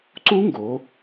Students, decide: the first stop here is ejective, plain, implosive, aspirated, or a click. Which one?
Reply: click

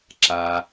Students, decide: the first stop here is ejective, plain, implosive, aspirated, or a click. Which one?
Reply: click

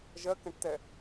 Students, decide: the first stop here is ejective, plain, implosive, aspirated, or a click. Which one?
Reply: plain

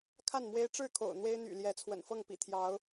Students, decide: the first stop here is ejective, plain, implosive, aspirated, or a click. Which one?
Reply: aspirated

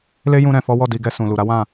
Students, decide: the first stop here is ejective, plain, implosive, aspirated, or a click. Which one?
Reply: plain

